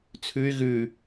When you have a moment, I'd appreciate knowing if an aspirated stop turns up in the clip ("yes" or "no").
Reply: yes